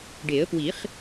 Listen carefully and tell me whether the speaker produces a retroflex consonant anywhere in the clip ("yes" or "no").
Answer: yes